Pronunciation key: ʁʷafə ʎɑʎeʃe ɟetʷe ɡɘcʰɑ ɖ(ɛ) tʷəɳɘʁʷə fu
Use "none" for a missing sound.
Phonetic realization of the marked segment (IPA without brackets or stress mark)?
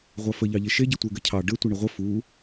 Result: ɘ